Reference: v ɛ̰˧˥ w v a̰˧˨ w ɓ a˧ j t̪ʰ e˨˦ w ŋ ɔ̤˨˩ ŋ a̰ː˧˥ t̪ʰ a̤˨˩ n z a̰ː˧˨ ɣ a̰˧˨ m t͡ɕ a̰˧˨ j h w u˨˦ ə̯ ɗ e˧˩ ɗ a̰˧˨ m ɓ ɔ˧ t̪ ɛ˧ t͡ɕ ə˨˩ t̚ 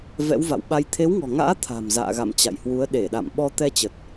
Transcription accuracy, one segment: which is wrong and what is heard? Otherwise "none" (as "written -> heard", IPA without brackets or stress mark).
n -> m